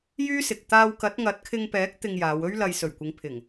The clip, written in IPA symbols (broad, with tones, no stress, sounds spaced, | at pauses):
j yː˥ s ɪ˨ k̚ t̪ aː˧ w k ɐ˨˥ t̚ ŋ ɐ˨˥ t̚ kʰ ɪ˧ ŋ p ɛː˨˥ k̚ t̪ ɪ˧ ŋ j aː˨˧ w ɵ˥ ɥ l ɐ˧ j s ɵ˨˩ ɥ kʷ ɪ˨˧ ŋ pʰ ɪ˨˩ ŋ